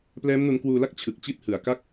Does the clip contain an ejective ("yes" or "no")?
no